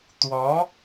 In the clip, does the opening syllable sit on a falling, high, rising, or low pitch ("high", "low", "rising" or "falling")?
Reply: rising